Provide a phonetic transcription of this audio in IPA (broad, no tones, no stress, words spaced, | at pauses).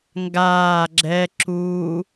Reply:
ŋɡaː ɡ͡ǁɛ ǁu